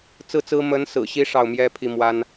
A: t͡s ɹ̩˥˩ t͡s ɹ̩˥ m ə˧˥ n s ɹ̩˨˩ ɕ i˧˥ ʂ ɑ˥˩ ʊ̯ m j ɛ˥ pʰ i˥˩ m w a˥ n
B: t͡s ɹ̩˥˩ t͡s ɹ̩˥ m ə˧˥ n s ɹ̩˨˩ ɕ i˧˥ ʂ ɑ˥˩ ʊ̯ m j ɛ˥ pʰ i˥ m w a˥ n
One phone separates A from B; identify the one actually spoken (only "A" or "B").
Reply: A